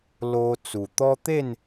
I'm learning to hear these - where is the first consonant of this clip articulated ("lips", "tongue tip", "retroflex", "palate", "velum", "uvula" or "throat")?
tongue tip